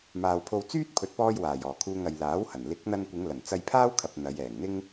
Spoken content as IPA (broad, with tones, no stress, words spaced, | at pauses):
maː˨wpʰo˧w t͡syː˥t̚ pʰɵ˨t̚pɔː˧j waː˨˩jɔː˨˩kʰuː˧ŋ ɐ˨jlaː˨˥whɐ˨˩n lɪ˨˥k̚n̪ɐ˧nkʷɪ˨˧ŋ lɐ˨˩n t͡sɐ˧jpʰaː˥wkʰɐ˨p̚ n̪ɐ˨˧j ɛː˨˩ŋn̪ɪ˥ŋ